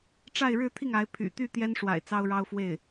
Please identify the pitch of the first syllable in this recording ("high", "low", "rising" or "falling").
falling